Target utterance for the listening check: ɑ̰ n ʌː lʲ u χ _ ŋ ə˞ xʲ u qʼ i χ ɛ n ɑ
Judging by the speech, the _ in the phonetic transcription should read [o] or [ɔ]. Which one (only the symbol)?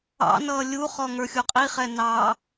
ɔ